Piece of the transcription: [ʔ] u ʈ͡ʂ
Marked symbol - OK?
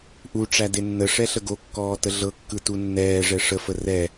yes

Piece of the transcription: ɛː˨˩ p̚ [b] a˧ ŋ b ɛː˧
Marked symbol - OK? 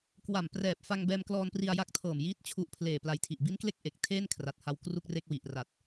no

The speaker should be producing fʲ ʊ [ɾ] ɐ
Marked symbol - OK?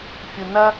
no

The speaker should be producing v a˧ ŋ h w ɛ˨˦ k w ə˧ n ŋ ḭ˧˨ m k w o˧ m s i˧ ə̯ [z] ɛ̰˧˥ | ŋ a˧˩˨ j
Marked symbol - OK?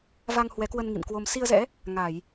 yes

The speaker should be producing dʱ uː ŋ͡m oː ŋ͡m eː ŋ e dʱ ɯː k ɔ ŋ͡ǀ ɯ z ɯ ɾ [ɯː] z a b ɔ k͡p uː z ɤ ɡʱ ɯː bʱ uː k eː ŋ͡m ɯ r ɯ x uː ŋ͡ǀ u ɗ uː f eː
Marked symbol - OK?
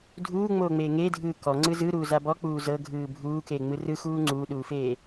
no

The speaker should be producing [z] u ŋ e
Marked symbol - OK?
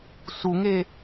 no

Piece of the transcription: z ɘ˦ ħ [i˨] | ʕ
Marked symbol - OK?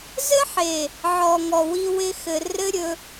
no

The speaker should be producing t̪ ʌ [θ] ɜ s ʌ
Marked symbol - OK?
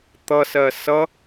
no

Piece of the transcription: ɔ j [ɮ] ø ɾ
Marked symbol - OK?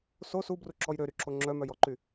no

